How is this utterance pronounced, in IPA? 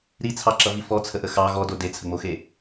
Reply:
ɾit͡sʰɑǁʌvi fɔt͡sʰəʔə xɑ ɣɔdo det͡sʰəŋ͡moxe

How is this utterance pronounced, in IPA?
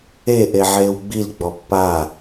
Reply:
e ʔeʕeːwɡ͡bil ɡ͡bɔpːa

